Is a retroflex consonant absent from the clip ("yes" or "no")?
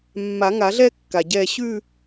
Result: yes